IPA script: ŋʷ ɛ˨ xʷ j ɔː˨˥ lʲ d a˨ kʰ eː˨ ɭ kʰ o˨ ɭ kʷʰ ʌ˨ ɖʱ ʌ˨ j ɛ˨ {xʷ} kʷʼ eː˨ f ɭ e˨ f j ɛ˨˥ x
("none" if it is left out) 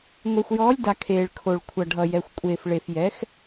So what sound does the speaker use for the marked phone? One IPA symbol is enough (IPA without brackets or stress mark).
xʷ